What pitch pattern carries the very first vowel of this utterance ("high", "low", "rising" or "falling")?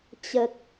low